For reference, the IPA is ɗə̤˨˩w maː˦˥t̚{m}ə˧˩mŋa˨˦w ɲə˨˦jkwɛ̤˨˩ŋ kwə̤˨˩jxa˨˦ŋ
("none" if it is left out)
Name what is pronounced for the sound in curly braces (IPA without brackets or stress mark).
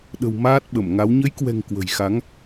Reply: ɓ